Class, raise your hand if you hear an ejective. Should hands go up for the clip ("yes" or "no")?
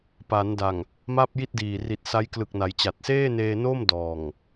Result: no